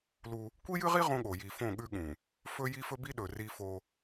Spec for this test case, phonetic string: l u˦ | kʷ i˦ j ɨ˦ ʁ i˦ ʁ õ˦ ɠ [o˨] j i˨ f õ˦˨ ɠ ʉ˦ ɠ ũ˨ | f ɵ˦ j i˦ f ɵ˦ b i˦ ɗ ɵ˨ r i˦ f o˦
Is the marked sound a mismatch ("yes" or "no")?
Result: no